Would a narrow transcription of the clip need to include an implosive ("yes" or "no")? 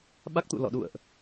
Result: yes